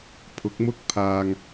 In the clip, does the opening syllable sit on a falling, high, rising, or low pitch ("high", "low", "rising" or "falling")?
rising